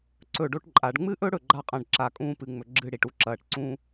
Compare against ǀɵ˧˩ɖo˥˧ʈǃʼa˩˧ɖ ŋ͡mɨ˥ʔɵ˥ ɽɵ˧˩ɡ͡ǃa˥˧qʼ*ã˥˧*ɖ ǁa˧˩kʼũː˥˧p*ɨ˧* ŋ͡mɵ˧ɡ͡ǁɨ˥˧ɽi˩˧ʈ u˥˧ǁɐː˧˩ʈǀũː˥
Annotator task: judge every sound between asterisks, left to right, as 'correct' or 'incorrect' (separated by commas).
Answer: incorrect, correct